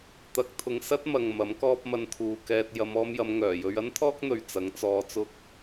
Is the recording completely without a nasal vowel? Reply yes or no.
yes